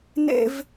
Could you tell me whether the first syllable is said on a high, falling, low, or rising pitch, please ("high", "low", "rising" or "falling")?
high